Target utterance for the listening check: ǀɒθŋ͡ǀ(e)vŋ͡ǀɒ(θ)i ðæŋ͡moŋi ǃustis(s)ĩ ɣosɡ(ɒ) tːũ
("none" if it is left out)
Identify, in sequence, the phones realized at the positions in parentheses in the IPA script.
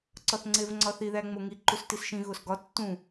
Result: e, θ, ʃ, ɒ

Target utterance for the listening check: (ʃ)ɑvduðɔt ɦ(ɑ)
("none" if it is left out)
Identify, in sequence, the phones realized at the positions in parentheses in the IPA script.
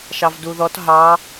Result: ʃ, ɑ

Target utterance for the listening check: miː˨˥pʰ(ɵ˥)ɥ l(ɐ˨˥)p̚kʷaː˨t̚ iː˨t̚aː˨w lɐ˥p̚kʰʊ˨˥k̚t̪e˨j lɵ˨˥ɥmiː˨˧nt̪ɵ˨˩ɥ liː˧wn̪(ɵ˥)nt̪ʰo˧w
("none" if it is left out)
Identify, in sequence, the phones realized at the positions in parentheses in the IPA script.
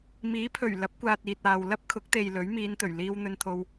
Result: ɵ˨˩, ɐ˨˥, ɵ˧

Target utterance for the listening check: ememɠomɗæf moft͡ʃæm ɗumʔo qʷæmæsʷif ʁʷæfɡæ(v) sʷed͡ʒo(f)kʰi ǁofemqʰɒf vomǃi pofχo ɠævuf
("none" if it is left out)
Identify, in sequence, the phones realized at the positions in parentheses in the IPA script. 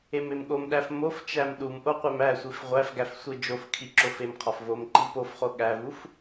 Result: f, f

